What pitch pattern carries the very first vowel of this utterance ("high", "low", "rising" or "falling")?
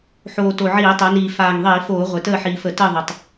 low